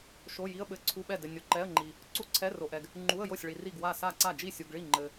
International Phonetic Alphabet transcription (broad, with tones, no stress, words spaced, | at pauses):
ʃo˧˥˧ ji˧˥˧ə̯ɓɘ˧˥˧ǀʰu˧˥˧ɓɛ˥˩ dɘ˨nʲo˨ ǃɛ˧˥˧ə̯ŋ͡ǃi˨ | ǀu˥˩ǀʰɛ˧˥˧ ro˨ʔɛ˨ɡ | ŋ͡ǃu˧˥˧ə̯jo˥˩sʲ ɭi˨ri˥˩ɡwa˥˩sa˥˩ ǀa˥˩d͡ʒi˥˩sʲu˨ɡɭi˥˩ ŋ͡ǃɘ˨